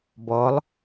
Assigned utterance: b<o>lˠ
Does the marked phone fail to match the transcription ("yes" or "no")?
yes